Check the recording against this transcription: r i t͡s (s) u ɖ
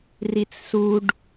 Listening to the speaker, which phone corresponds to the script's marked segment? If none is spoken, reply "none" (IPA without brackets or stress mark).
s